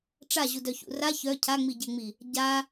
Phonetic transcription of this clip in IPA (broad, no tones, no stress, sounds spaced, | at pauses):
ʈ͡ʂ a ʑ u d œ ç ṵ r a ç œ cʰ a ŋ͡m i ɟ e ŋ͡m i | ɟ a